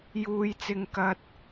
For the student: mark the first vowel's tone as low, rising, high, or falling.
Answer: low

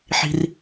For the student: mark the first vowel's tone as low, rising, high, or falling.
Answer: high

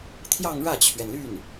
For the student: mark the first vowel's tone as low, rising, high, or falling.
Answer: falling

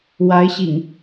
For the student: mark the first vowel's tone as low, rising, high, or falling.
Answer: rising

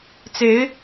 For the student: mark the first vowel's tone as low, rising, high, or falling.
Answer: rising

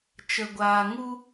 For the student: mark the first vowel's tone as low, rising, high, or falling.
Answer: low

